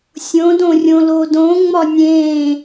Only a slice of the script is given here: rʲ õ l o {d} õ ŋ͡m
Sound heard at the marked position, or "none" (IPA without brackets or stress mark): d